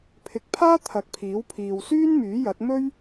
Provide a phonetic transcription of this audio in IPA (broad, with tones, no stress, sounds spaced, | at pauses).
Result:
pʰ ɪ˨ k̚ pʰ aː˥ t̪ʰ ɐ˨˥ k̚ pʰ iː˨˥ w pʰ iː˨ w s yː˥ n m yː˨˥ j ɐ˨˥ t̚ m ɵ˥ ɥ